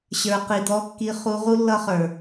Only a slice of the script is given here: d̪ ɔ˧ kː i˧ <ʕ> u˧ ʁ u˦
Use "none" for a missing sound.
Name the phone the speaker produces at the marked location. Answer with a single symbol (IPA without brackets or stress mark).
χ